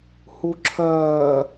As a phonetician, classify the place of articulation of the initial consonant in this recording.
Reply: glottal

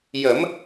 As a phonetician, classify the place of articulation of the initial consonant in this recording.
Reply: palatal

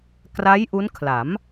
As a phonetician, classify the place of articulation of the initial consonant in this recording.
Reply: velar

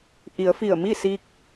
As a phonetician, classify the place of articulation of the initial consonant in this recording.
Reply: glottal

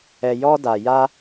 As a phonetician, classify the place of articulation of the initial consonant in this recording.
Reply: palatal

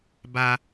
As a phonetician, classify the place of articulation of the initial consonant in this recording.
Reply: labial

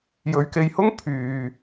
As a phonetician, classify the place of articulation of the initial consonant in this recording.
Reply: palatal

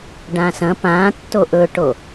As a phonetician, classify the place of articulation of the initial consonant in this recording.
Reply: retroflex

